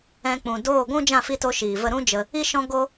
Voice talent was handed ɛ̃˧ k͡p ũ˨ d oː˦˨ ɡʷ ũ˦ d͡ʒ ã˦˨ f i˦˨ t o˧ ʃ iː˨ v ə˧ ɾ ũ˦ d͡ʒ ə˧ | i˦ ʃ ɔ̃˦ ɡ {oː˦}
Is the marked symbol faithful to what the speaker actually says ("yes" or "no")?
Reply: no